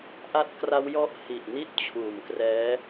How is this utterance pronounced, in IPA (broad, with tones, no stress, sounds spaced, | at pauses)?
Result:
ʔ a˦˥ t̚ k r a˦˥ w j ɔ˦˥ ʔ h i˨˩ ʔ n i˥˩ t̚ t͡ɕʰ uː˨˩ m k r ɛː˦˥